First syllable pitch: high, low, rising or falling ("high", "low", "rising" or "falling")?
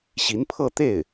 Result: rising